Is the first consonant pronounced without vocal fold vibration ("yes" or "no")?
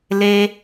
no